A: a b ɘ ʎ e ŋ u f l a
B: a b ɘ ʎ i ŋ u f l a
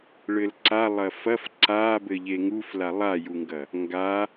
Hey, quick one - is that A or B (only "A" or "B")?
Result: A